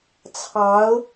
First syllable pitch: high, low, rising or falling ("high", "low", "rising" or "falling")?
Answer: rising